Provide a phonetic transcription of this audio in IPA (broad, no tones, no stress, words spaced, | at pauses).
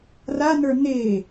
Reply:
ranə˞ ne